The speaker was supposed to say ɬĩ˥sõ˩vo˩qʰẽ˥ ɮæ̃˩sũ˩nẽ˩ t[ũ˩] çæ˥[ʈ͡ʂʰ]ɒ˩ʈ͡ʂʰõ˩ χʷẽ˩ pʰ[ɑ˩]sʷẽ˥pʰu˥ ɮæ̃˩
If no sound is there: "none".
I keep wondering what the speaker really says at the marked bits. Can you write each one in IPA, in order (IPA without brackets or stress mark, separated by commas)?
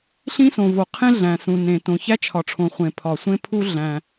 õ˩, t͡ʃʰ, ɒ˩